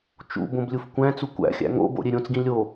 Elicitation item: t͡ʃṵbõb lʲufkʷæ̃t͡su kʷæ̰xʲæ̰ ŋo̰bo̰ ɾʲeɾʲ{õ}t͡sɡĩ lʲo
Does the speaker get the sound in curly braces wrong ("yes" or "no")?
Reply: no